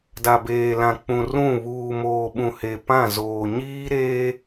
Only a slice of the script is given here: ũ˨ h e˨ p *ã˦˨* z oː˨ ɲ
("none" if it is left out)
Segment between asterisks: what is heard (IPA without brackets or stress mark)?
ã˦˨